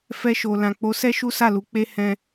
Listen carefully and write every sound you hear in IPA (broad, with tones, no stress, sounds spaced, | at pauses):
f ɛ˧ ʃ o˨ l ã˨ k͡p o˨˦ s ɛ˦ ʃ u˦ s a˦˨ l u˨˦ k͡p e˦ h ɛ̃˦